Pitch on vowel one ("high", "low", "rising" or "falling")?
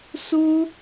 high